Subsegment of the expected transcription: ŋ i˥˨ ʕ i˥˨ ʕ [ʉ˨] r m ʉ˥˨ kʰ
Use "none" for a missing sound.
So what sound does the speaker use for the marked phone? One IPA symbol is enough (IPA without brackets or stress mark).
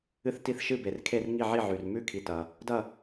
ʉ˨